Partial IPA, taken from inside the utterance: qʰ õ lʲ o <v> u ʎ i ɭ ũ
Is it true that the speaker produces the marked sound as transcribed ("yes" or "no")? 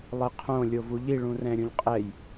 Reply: yes